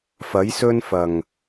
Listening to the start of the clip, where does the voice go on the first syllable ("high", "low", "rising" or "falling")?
rising